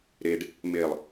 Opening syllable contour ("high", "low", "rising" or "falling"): low